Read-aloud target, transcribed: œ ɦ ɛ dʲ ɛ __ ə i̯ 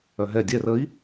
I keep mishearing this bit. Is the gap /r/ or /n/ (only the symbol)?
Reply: r